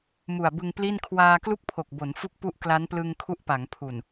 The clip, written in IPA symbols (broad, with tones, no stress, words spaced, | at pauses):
mu˨˩a̯bɯ˧ŋpli˥˩n kʰwaː˧ klu˥˩k̚pʰo˨˩k̚bo˩˦n fu˥˩k̚ pu˦˥ʔ kla˦˥nplɯ˧ŋ kʰu˦˥ʔpa˩˦ŋpʰu˨˩n